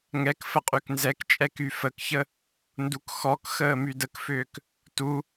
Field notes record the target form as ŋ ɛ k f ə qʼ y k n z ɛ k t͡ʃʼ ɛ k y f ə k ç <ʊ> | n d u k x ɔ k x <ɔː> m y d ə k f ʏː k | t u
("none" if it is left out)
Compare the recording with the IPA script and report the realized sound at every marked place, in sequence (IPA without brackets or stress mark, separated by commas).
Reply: ə, əː